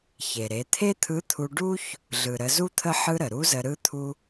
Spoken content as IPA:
çe˩ɾe˩˧ t̪ʰe˥t̪ʰɯ˧˥t̪ʰu˧ ɖu˥ç | ɮɯ˩ɾə˩˧zu˥t̪ʰə˥ ħɯ˥ɾə˩ ɾu˧˥zə˧ ɾɯ˥t̪ʰu˥

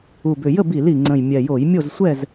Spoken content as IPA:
u˨˩bʏ˨˩ jə˥˨bi˧˩˧li˨˩ŋ͡ǀə̃˨˩j mʲɛ˨˩jo˧˩˧jmʲo˥˨z sʷɛ˥˨z

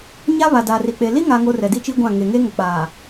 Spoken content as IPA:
ɲa˦ βa˨daː˨ri˨k͡pe˨ li˦ŋa˨ŋo˨ rɛ˨di˦ t͡ʃi˦ɡʷã˦˨ ŋe˨ŋe˦ŋʊ˨k͡paː˨

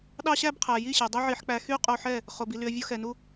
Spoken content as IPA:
ɗɑ˦ɕæ˦bqʰæ˨ji˦˨ ɕe˨dˤi˦ʕi˧ħk͡pæ˧ xy˦qʼo˧ħɛ˦˨ | χo˨bi˨ ly˧ə̯vʲo˦xɛ˧nu˦

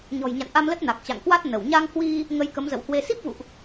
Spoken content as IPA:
ɲɔ̤˨˩jɲa̰˧˨nʔa˧mlə˦˥t̚ na˨˩k̚t͡ɕa̰˧˨ŋkwa˦˥t̚ nə˧˩w ɲa˧ŋhwi˧ | ŋə˧jkə˨˦mzə̰˧˨whwe˧ si˦˥p̚vṵ˧˨ʔ

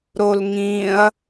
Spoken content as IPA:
ɾolŋĩɐ̯

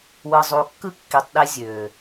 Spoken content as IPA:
wɯ˨zˤu˨ kːɯ˦ kːi˨tˤɗe˧ zʲø˨

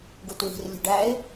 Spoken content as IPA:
ɡutwi̤r lʲṳɖæɪ̯

